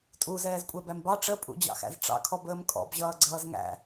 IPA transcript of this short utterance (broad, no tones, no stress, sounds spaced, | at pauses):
tʼ u z ɛː z kʷʼ ɛ b æ m b ɑ ʈ͡ʂ ə pʼ ṵ d͡ʑ ɑ̰ x æ̰ z ʈ͡ʂ ɑ̰ kʰ ɔ b əː m kʼ ɔ̰ b ʑ ʌː ɡ͡ǀ ʌː z ŋ æ̰